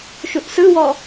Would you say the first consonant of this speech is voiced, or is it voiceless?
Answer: voiceless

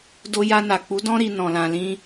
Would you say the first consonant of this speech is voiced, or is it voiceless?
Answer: voiced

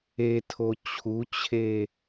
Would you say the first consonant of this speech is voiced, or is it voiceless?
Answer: voiceless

